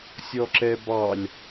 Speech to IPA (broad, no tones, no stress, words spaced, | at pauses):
sʲɔǁɛbɑlʲ